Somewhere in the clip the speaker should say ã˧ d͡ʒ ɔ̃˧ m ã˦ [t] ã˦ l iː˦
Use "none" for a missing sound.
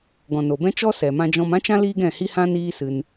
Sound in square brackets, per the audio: t͡ʃ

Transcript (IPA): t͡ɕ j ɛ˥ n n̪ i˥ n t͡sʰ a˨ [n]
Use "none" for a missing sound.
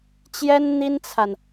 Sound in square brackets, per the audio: n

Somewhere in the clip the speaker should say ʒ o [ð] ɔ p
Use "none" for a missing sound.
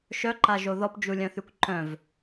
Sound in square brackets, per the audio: ð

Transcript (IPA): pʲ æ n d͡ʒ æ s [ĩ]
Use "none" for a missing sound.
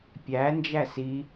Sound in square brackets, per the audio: i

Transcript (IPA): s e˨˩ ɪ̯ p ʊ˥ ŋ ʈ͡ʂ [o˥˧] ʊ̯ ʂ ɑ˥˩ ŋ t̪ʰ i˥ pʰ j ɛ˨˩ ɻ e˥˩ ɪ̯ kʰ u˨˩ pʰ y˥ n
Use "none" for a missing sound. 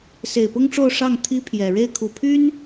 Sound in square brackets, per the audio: o˥˧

